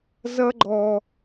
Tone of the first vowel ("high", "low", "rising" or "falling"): high